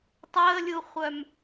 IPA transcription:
tˤəːlʲuχʷœm

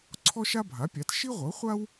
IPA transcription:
ǀʰɔ˥ʃa˥bʱa˩˥pʲa˩˥t ʃi˥ʁʷɤ˩˥χʷa˥w

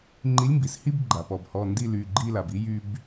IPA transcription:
ŋ͡ǃi˨˥lʲmbi˩˧˩shi˥˧b ɡ͡ǃa˩pɔ˩b hɔ˩˧˩ ndi˥˧ly˩˧˩ɡ͡ǃi˥˧ la˩bi˨˥ jy˧b

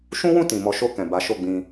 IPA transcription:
ʃũ˦wũ˦˨ tĩ˨ mɔ˨˦ʃo˧kɛ̃˨ ba˨˦ʃo˦˨ɡ͡bĩ˧

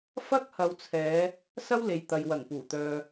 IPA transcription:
fɐ˥k̚hɐ˨˧wt͡sʰɛː˨˧ | sɐ˥wle˨jt̪ɐ˨j wɐ˨˩ŋpuː˨˩t̪œː˨

